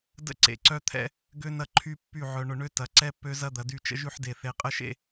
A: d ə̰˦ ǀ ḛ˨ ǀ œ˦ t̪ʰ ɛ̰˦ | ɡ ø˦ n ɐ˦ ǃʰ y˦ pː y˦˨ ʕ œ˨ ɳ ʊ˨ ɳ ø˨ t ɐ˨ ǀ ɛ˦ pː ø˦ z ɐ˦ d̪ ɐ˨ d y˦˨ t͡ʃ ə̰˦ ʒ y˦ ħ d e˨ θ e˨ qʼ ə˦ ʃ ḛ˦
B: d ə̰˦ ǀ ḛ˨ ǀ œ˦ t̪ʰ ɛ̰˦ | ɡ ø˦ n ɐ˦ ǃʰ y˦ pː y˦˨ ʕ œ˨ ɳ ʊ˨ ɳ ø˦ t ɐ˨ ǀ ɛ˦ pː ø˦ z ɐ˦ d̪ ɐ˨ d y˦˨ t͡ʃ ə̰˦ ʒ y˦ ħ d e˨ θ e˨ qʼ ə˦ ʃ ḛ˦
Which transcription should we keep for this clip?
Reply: B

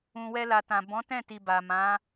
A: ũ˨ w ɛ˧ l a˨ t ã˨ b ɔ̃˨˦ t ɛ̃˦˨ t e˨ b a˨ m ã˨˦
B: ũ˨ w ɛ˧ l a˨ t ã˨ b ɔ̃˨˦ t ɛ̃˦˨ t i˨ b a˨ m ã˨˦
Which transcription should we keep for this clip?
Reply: B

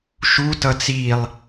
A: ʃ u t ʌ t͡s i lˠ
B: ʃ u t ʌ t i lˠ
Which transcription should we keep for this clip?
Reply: A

